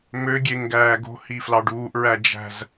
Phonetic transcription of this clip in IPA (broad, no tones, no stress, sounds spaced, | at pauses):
m ø ɡʲ e ŋ ɡ æː ɡ o̤ h i f l ɑ ɖ uː ʔ ɹ æ d͡ʒ æ̤ z